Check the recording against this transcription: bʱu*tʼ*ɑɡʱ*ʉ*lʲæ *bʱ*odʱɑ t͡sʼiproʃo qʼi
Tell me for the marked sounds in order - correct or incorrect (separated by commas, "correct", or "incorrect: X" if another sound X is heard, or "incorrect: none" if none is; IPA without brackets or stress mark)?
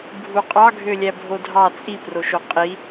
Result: incorrect: qʼ, incorrect: ø, correct